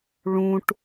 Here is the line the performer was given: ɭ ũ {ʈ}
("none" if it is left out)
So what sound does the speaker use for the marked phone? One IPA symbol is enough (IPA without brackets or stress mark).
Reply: ʈ